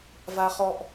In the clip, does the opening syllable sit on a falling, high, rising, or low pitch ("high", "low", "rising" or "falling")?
high